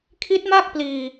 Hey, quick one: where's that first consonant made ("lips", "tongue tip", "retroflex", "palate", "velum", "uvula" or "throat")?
velum